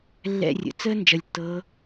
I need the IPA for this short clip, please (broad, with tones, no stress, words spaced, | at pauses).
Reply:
lːɛ̰˦˨rʲə̰˨˩ t͡səː˥ nd͡ʒʌ˨˩lʲtːɤ˨˦